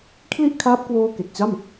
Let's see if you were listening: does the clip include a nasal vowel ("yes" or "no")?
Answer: no